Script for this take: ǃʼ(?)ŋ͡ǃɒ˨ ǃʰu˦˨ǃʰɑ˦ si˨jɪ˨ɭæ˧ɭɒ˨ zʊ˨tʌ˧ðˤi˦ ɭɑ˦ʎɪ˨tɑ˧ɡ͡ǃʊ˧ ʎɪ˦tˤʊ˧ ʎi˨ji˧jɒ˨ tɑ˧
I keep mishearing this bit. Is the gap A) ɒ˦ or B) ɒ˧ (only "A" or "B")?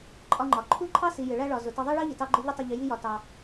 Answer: B